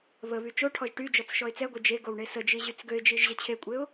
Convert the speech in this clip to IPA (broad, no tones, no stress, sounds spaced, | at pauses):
β ə β y t͡ʃ o ʈʰ ɔ ʒ ʈ y d͡ʒ ɔ t͡s ʃ ɔ ɪ̯ t͡s ɛ ɡʷ e d͡ʒ e ɡ o w ɳ e s ə d͡ʒ i ʑ y t͡s ɡ ø ɪ̯ d͡ʒ i ʒ ʑ ə t͡ɕʰ e kʷʼ e ʊ̯